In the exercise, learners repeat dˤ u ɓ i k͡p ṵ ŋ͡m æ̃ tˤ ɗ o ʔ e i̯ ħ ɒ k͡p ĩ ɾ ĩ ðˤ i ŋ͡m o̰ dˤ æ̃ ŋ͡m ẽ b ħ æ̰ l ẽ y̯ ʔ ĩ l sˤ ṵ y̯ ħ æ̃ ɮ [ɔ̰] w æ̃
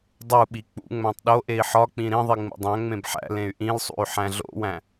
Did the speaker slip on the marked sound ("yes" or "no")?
yes